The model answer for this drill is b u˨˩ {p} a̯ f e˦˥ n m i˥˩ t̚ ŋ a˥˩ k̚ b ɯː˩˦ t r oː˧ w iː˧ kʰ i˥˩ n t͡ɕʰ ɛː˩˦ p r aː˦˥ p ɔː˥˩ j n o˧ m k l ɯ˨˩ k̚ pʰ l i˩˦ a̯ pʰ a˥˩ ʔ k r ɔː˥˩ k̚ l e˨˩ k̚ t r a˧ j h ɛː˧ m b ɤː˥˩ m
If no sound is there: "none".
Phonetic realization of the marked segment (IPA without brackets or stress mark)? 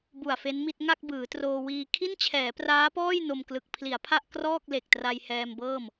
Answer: none